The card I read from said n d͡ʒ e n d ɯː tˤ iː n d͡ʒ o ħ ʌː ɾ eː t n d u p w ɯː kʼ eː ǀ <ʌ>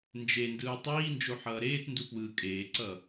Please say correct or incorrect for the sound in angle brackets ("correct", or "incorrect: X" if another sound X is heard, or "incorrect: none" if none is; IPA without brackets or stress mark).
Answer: correct